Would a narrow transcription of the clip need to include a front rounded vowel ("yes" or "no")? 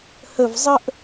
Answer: no